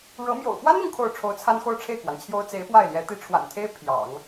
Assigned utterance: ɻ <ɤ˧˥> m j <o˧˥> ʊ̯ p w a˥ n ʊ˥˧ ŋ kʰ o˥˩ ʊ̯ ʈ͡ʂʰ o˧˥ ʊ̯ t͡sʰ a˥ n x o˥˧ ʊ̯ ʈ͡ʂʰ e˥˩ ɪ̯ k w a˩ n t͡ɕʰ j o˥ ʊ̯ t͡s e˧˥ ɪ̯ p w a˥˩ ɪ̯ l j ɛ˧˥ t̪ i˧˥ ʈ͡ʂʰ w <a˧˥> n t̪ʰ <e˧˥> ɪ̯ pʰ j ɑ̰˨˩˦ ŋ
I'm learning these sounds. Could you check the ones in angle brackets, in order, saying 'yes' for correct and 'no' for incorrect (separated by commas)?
yes, no, no, no